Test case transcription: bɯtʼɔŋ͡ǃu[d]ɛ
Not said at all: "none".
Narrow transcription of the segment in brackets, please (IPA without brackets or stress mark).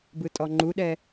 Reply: ɗ